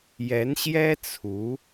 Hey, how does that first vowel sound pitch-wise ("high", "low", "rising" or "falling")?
rising